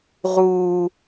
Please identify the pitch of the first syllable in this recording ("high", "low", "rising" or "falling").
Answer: low